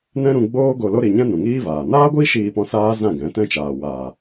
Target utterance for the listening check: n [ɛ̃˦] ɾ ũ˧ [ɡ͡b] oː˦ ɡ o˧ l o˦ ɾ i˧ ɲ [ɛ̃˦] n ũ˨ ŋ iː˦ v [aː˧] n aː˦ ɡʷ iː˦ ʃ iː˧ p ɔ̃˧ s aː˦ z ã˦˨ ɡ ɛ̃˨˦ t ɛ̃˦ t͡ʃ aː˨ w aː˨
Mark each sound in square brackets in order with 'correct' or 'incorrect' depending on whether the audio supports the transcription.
correct, correct, correct, incorrect

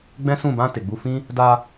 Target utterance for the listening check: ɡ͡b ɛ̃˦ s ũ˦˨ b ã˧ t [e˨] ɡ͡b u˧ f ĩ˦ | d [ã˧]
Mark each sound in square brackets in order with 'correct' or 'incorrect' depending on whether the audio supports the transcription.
correct, incorrect

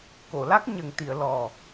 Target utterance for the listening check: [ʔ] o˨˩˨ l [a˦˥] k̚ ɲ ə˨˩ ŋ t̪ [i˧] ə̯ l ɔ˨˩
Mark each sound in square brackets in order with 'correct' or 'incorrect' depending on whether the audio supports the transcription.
incorrect, correct, incorrect

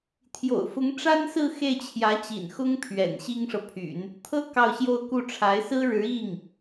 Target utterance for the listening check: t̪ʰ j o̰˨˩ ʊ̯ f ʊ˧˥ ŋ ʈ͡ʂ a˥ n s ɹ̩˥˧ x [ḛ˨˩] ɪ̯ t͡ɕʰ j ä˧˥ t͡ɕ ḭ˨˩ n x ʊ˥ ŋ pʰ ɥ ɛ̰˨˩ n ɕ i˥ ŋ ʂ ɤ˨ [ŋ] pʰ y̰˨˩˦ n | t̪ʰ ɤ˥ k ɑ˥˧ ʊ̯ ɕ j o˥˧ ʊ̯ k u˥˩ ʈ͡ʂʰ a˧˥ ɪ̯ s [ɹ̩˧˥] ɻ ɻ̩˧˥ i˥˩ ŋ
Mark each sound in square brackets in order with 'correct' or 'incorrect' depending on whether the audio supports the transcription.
incorrect, incorrect, incorrect

